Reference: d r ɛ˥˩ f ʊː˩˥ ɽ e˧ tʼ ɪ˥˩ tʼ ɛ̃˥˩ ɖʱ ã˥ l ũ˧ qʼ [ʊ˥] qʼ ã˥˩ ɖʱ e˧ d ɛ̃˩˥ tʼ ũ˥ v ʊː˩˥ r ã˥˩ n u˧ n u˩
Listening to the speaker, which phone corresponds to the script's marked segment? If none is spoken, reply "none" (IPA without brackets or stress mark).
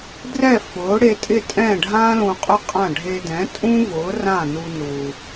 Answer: ʊ˥